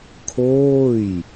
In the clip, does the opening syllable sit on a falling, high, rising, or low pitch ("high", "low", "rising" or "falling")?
falling